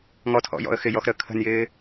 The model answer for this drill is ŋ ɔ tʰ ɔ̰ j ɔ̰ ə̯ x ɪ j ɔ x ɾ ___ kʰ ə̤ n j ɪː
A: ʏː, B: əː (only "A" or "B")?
B